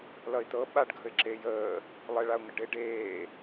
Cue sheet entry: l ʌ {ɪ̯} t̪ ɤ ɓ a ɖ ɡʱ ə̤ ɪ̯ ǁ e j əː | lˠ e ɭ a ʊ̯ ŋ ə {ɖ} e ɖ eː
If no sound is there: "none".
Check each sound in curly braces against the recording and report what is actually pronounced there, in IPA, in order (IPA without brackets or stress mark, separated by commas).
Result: ɪ̯, ɖ